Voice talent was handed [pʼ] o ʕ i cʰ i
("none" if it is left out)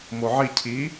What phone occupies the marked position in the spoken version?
m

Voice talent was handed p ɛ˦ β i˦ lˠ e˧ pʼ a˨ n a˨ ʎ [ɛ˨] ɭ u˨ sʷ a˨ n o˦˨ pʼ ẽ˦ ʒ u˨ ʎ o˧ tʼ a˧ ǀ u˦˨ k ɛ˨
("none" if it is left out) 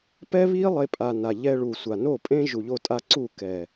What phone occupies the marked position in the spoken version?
ɛ˧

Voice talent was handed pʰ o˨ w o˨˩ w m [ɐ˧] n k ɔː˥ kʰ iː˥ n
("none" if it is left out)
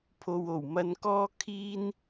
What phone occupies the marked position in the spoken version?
ɐ˧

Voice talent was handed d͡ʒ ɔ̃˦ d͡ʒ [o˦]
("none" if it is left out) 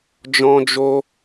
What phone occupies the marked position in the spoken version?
o˦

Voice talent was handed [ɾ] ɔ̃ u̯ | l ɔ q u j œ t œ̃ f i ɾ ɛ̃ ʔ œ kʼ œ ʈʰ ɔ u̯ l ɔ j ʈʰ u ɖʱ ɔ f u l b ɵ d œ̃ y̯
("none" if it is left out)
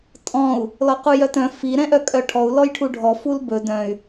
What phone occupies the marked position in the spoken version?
tʼ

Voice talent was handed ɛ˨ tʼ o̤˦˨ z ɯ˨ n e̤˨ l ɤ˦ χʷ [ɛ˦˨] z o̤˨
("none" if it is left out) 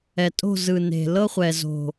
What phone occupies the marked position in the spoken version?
ɛ˨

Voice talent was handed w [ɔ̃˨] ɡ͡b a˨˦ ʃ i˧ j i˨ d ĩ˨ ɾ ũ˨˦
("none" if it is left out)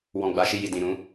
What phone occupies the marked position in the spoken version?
ɔ̃˨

